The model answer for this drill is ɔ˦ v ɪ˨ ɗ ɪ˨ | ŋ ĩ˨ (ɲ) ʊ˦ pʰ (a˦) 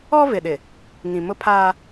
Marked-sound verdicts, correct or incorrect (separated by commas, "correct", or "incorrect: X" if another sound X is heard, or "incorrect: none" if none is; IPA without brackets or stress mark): incorrect: m, incorrect: aː˦